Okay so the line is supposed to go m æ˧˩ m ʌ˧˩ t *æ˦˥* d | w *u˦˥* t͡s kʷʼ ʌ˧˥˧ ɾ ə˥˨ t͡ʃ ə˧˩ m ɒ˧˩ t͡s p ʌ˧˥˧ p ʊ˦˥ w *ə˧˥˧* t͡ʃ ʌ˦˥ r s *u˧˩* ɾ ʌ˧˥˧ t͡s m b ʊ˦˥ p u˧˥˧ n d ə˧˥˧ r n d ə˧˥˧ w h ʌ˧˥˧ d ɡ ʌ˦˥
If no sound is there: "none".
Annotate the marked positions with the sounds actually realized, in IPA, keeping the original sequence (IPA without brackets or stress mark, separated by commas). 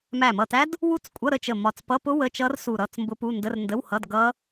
æ˦˥, u˦˥, ə˧˥˧, u˧˩